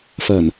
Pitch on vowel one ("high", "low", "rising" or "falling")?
low